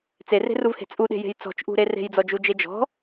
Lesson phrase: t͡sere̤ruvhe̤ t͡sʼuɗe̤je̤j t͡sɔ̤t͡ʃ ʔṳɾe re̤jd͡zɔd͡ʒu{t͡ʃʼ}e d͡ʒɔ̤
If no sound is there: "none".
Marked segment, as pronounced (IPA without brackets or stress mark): d͡ʒ